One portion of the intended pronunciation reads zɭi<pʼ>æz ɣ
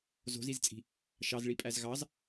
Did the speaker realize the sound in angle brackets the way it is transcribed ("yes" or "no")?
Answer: yes